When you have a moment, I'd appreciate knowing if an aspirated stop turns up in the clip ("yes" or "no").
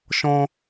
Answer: no